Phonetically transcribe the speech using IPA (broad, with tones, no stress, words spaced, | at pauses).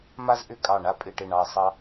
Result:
ma˥zʔʏ˥˧kʼɑ˧˩ ɳa˥pʼɪ˧˩ʈɪ˧˩ ɳɑ˧ɐ̯sˤɑ˥